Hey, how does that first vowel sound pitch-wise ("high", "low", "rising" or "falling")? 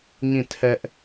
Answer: falling